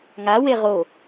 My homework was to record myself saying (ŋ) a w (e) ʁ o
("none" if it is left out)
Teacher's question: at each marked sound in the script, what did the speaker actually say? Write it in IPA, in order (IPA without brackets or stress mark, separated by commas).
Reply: ŋ, e